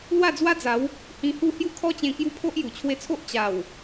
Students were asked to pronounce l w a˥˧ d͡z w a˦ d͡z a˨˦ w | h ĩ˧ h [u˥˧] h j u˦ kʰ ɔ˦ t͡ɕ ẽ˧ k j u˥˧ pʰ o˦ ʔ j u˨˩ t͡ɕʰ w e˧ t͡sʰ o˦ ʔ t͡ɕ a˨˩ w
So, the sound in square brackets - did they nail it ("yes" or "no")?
yes